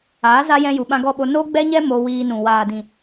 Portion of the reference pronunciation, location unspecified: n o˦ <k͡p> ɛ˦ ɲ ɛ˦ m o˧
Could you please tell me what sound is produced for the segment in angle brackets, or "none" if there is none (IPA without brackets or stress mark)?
ɡ͡b